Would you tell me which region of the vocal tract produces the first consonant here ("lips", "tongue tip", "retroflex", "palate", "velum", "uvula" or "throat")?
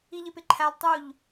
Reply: palate